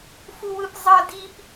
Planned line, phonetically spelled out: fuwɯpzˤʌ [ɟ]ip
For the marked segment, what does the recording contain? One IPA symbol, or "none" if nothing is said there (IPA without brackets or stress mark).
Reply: d